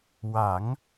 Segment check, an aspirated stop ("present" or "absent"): absent